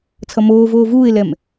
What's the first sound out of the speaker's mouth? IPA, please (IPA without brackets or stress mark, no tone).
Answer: t͡sʰ